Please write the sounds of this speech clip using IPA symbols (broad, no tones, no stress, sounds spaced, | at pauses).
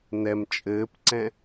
n ɛ m t͡ʃʼ ɘː p ǀ ɛ̃